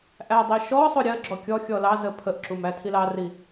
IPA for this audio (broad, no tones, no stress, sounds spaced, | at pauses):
ʔ æ dˤ i ʃ ɔ sˤ ʊ ɾʲ ɜ ɡ͡ǁ ɔ kʲ ɔ xʲ ɔ l ɑ z ə pʰ ə ʔ ǁ u m æ tʰ i l ɑ r i